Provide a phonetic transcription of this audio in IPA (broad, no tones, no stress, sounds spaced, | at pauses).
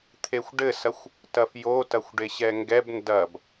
t̪ʰ e xʷ ɖ ɘ s ɐ xʷ | t ɐ f j o t ɐ xʷ ɖ e ɕ ɛ ŋ ɡ ɛ b n d ɐ b